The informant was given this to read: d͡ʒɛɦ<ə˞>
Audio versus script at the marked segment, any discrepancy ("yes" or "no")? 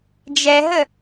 yes